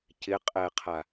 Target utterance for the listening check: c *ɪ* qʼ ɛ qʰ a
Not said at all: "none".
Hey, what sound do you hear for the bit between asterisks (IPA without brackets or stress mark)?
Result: ɪ